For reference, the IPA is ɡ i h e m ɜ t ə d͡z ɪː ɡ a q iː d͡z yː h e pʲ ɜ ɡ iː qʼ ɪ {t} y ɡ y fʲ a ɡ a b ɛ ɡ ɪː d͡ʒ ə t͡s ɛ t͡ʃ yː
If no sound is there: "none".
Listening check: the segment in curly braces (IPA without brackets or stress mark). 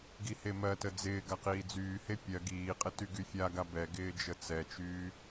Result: t